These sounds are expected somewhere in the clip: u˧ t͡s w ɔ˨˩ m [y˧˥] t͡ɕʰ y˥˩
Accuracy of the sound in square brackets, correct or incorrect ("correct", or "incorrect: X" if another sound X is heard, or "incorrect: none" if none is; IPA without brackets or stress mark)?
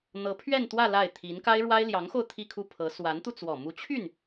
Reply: incorrect: u˧˥